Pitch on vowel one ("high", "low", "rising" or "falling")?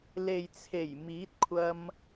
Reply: low